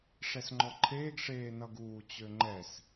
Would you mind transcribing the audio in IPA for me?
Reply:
ʂ ɛ s ŋ͡ǃ ɔ ǃʰ eː ɡ ʂ eː n ʌ ɡ uː t͡ɕ ø ŋ͡ǃ ɛ s

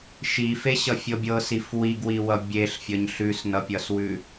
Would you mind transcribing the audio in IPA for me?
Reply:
ʃ i f e ɕ ʌ fʲ ɤ bʲ ɤ s i f w i ɡ w i w ʌ bʲ e ɬ fʲ ʌ ɲ ɬ ʉ s n ʌ pʲ ʌ s w ʉ

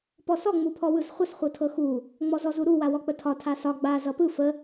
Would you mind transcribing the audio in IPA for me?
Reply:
p ɔ s ɔ ŋ͡m u pʰ ɔ w ɯ z χʷ ə s χʷ ɤ tʰ ɤ x u | ŋ͡m ɔ z ɔ z u ɾ u w a w ɔ k͡p ə tʰ ɒ tʰ a s ɒ ɡ͡b a z ʌ p ɯ f ə

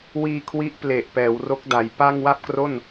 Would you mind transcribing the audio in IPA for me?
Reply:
w iː˧ kʰ w i˦˥ ʔ p l e˨˩ ʔ p ɛː˩˦ w r o˦˥ k̚ d a˩˦ j p a˥˩ ŋ w a˥˩ p̚ k r o˥˩ n

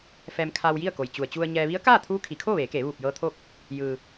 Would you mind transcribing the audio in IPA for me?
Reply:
f ɛː˧ m kʰ aː˧ w j i˥˨ ə̯ k o˩ j t͡ɕ u˩ ə̯ t͡ɕ u˧ ə̯ ɲ ɛː˧ ʋ i˧˥ ə̯ k aː˥˨ t̪ʰ uː˧˥ kʰ i˩˧ kʰ oː˥˨ ʋ eː˩˧ k eː˩˧ ʋ uː˧˩ p̚ j ɤː˧ t̪ʰ oː˥˨ k̚ | j ɯː˩

